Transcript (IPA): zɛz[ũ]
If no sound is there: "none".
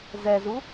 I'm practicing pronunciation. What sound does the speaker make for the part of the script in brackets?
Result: u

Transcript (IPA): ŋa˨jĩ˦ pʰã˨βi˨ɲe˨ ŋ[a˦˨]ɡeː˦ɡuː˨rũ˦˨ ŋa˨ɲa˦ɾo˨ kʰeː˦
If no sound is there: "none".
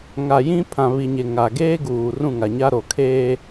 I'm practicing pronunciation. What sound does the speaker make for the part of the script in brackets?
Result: a˨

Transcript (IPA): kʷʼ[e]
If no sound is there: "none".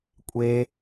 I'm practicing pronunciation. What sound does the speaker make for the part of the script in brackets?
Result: e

